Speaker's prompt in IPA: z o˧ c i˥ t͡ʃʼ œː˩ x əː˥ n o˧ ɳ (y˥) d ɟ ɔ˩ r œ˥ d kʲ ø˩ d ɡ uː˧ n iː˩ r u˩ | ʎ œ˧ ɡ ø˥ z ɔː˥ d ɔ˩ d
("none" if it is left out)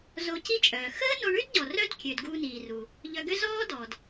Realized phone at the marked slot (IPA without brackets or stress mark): y˥